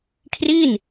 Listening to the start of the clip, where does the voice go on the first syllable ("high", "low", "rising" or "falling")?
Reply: falling